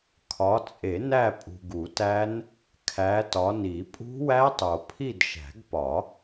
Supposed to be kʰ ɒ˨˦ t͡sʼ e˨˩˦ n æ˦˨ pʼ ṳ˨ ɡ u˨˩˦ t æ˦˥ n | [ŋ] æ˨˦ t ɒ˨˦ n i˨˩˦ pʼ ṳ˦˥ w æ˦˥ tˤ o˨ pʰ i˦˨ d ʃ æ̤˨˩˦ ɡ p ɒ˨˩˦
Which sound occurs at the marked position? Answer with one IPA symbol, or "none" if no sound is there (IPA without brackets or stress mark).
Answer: kʰ